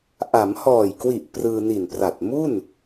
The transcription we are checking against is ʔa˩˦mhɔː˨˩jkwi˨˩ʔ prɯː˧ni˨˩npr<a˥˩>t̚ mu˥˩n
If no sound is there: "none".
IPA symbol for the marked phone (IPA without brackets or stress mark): a˨˩